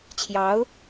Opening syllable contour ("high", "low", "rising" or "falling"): rising